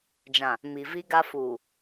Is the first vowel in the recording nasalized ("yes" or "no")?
yes